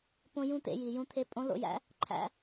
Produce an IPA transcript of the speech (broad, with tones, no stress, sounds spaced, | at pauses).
p õ˧ j ũ˧ t̪ ḛ˩˧ j i˩ j ũ˧˥ t̪ʰ e˧˥ pʼ õ˧˥ l o̰˧ j æ̰˥ | ǃʰ æ̰˧